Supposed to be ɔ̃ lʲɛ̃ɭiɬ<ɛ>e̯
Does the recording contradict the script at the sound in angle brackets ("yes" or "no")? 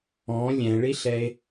no